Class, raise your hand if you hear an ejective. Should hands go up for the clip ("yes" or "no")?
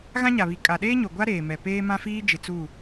yes